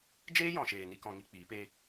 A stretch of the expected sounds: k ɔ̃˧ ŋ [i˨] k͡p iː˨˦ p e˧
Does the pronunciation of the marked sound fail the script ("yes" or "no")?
yes